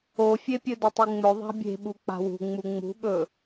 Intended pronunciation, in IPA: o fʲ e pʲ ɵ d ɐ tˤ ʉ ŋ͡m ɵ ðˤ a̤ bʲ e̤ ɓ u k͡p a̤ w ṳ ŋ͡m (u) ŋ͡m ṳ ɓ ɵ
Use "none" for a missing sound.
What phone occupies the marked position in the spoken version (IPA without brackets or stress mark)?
u